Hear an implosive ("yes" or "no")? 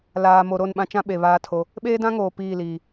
yes